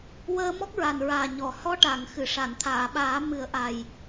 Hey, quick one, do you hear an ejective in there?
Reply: no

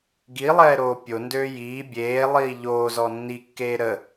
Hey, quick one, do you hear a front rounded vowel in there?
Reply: yes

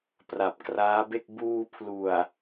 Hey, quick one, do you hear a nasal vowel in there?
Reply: no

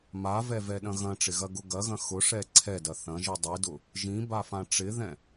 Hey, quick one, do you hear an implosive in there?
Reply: yes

